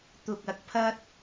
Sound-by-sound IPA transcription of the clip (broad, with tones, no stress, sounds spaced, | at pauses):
t̪ ʊ˨ k̚ ɐ˨ k̚ pʰ ɐ˥ t̚